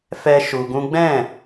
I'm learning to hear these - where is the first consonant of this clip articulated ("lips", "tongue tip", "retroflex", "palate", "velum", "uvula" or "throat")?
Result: lips